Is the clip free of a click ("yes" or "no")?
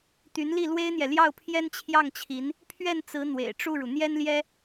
yes